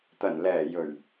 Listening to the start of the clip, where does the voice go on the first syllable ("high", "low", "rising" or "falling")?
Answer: low